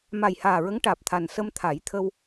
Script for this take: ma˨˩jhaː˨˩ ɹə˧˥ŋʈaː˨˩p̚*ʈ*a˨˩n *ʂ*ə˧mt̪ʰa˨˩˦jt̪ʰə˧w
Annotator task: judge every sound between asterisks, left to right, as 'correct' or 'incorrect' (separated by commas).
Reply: incorrect, incorrect